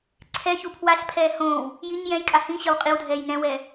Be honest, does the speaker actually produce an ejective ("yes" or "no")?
yes